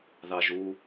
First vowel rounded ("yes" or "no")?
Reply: no